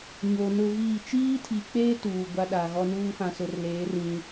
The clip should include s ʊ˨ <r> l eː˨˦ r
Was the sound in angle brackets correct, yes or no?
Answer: yes